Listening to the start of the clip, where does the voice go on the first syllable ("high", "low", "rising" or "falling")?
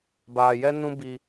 low